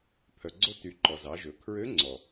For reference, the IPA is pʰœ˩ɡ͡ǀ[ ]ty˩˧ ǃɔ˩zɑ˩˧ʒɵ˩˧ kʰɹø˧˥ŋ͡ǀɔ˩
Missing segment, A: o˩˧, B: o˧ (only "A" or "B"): B